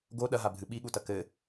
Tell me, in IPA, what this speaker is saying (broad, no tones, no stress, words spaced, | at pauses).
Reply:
ɡo ɗɐɦabʱɨ ɓiɠutɐ kɘ